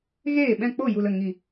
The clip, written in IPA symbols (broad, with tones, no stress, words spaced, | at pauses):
ɣeː˦˨ɓɛ̃˦˨ k͡po˦˨ju˨lə˦˨ ŋi˨